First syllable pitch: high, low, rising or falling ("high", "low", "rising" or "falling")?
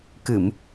low